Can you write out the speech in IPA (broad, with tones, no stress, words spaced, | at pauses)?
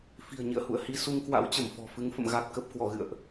fi̤˨˩ə̯ɲḭ˧˨ə̯hṵ˧˨ə̯ hi˧su˧ŋkwa̰˧˥wt͡ɕə˧˩m fɔ̤˨˩fɨ˨˦ŋfə̰˧˨m ɣa˨˩t̚kə˨˩p̚ kwɔ˧˩ɣɨ̰˧˨ə̯ʔ